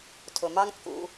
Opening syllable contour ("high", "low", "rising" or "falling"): low